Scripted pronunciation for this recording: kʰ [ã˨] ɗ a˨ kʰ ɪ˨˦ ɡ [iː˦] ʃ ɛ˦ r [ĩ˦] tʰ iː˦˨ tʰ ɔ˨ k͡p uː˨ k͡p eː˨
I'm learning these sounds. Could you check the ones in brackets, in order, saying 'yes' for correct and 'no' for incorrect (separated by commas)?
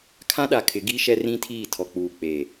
no, yes, yes